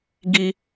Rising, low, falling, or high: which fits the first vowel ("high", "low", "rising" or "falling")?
high